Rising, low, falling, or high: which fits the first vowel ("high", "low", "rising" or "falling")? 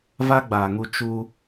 high